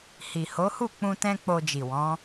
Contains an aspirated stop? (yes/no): no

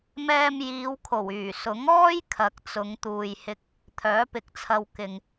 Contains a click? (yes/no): no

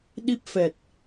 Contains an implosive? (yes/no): yes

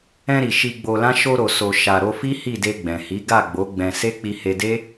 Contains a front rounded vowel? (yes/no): no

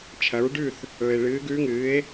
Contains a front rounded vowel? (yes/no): no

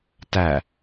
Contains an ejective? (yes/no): no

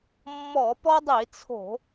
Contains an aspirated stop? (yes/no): yes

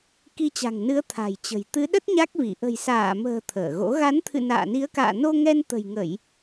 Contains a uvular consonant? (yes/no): no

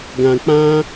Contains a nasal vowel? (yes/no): yes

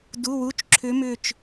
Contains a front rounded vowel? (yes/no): yes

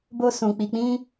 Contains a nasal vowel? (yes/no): yes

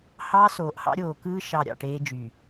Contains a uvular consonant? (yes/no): no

